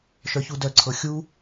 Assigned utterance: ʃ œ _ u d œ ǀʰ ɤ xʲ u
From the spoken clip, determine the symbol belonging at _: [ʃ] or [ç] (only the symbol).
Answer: ç